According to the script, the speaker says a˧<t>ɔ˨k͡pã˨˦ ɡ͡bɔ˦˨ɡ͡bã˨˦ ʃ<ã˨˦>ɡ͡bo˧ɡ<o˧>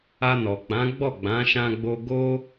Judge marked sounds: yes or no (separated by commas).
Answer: no, no, no